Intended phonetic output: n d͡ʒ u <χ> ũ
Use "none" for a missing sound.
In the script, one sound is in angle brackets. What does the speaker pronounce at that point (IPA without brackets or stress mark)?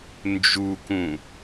k